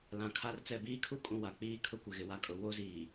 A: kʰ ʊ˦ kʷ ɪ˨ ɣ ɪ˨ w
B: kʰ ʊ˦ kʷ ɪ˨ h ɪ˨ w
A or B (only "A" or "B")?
A